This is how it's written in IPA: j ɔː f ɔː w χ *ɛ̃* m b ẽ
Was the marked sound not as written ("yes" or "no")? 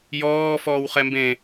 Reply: yes